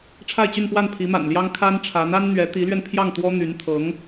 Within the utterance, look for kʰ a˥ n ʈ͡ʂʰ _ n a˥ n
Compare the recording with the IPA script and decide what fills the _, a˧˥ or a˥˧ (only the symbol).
a˧˥